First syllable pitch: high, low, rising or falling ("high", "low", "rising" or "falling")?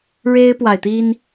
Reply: high